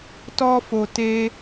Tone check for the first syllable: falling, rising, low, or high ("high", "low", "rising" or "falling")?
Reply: high